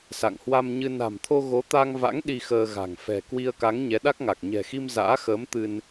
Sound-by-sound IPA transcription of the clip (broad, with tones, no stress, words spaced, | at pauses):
sa̰˧˨ŋ hwa˧mɲɨ˧ na̤˨˩mt̪ʰo˧ ɣo˨˦t̪a˧ŋ va̰˧˥ŋ ɗi˧xəː˧ɣa̤˨˩ŋ fɛ̤˨˩ kwi˧ə̯ka˨˦ŋ ɲɛ˨˦ɗa˦˥k̚ŋa˨˩k̚ ɲɛ̤˨˩xi˧m za̰ː˧˥xəː˨˦m t̪ɨ˧n